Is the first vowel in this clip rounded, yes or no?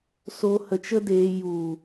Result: yes